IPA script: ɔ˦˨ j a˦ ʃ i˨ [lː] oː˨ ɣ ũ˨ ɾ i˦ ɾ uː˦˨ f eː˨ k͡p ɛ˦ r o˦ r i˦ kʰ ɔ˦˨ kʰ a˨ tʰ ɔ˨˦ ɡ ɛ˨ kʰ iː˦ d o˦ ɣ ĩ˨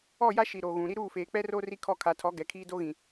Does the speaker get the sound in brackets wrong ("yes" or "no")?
yes